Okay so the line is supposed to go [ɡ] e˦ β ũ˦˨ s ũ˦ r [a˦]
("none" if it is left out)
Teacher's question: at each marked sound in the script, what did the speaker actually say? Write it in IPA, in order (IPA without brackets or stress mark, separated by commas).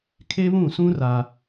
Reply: kʰ, a˦